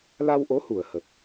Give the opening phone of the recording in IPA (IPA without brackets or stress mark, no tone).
l